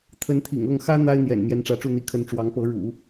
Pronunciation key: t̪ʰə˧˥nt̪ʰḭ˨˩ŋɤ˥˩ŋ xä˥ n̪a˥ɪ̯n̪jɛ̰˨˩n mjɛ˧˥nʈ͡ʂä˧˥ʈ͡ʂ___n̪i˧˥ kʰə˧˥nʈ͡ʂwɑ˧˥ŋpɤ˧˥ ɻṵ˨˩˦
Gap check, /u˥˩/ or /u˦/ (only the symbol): u˥˩